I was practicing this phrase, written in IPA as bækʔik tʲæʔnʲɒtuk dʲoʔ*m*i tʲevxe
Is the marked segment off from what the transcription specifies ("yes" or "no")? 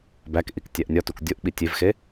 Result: yes